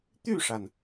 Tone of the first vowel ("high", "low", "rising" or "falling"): falling